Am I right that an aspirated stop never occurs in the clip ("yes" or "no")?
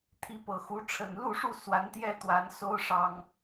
no